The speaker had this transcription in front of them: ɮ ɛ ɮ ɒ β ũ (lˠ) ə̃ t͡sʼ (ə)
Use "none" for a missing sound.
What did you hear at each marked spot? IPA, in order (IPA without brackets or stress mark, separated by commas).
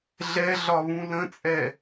l, ɛ